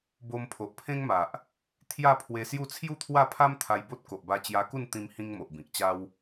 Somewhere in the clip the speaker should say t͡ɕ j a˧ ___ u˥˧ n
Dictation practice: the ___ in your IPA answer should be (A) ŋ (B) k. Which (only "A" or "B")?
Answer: B